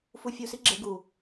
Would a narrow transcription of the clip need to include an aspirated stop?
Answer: no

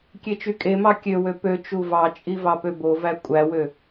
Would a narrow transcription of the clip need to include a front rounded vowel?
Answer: yes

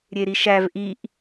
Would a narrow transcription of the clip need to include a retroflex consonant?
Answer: no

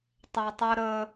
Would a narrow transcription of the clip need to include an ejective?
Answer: no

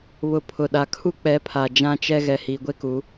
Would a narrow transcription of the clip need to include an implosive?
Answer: yes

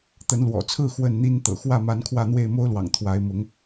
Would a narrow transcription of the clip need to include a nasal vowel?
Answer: no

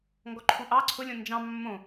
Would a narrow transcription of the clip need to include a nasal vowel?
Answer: yes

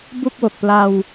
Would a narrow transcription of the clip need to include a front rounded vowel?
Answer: no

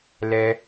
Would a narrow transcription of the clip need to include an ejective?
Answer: no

